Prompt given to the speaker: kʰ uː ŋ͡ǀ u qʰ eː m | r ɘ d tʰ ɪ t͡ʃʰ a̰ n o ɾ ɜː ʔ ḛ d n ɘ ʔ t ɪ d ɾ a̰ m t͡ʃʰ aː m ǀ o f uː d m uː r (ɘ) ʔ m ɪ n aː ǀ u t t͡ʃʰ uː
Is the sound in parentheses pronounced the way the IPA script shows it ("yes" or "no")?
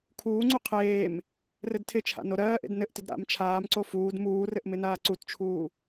yes